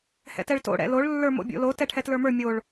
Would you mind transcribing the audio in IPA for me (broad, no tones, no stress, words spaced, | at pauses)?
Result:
hɛ̰tɛɭto̰ ɽɛ̰loɭ lːə˞mo̰bʲo̰lo tɛʈʰɛtlə˞mə˞ mʲoɭ